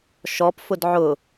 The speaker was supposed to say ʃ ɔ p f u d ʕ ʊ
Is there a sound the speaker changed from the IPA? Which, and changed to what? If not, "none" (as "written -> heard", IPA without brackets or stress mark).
u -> ʊ